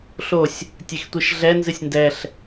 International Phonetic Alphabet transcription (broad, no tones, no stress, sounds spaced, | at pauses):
ɬ o sʲ | tʲ e x tʷ i ʃ ɮ ɛ n z ɨ sʲ n d ɛ ɬ